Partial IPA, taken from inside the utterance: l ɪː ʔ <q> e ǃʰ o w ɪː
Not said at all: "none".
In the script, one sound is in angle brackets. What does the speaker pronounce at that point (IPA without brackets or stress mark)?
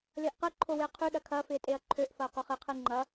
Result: q